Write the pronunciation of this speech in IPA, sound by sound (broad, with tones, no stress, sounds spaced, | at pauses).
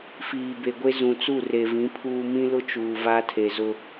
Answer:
f iː˨ b e˨ ɡʷ e˦ z ũ˨ t͡s u˦˨ r e˨ v ĩ˨˦ pʰ uː˦ m ĩ˦ l ʊ˦ t͡ʃ uː˨ v a˦ tʰ e˨ z ʊ˦